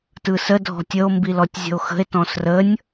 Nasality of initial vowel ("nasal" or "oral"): oral